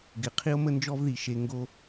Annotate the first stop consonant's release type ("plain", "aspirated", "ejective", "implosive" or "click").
plain